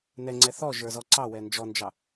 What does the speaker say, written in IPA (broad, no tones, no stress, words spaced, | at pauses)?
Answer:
nɛŋ͡ǀɛ θɔʒə˞zɔ ǀɑwɛ nd͡ʒɔnd͡ʒɑ